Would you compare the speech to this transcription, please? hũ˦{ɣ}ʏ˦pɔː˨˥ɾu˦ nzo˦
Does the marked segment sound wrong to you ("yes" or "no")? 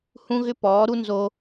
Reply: no